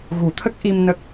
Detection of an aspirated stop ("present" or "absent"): present